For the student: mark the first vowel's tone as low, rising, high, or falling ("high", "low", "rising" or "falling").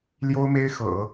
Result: high